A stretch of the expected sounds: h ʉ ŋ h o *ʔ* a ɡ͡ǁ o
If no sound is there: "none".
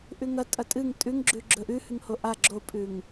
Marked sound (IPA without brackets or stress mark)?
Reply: ʔ